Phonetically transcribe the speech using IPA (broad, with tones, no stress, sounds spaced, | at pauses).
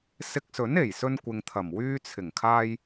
s ɪ˧ k̚ s ɵ˨˥ n e˨˩ j s ɵ˧ n kʷ ɪ˨ ŋ t̪ʰ ɐ˨˩ m w yː˧ t͡sʰ ɪ˨˩ ŋ kʰ aː˧ j